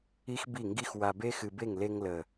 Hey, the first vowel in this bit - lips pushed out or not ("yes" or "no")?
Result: no